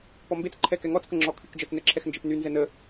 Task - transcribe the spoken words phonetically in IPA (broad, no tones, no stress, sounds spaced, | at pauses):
p ɔ m b e t͡s ǃʰ ɛ k ɛ ŋ ɔ t͡s k ə ŋ͡ǁ ɔ kʰ y k d͡ʒ ə t͡s n ɛ ǁʰ ɛ x n d͡ʒ e p n y n z ɛ n ə